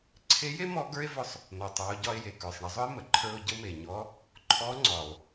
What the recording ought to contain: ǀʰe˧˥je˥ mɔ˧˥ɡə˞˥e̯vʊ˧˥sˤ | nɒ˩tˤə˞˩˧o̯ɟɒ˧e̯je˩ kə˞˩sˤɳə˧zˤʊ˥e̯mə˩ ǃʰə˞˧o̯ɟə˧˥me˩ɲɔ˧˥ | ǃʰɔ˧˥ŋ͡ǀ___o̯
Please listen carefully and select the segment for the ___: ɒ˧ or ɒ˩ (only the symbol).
ɒ˩